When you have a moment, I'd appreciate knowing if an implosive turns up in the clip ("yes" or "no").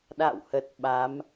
yes